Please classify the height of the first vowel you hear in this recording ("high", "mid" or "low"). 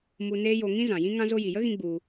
high